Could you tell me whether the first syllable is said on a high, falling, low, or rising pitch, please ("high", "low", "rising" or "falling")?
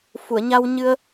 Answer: low